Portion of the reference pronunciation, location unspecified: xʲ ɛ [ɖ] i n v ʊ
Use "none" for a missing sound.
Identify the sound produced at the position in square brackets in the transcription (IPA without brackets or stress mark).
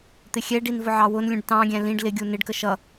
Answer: ɖ